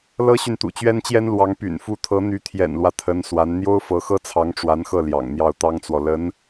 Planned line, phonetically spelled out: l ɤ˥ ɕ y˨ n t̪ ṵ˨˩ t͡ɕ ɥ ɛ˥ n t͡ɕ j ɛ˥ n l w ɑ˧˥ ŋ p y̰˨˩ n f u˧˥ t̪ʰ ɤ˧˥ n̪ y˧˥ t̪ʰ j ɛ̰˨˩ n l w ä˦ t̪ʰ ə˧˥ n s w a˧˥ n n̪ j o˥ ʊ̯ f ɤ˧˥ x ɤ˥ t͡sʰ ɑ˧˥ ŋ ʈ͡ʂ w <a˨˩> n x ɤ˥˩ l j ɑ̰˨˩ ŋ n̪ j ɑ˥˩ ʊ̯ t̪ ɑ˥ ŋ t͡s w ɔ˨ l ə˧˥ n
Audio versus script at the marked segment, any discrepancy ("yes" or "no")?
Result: yes